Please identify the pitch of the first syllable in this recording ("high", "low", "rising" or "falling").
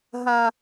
low